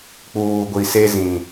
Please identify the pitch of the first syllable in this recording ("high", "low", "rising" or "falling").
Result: low